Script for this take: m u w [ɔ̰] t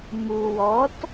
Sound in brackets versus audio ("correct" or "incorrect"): incorrect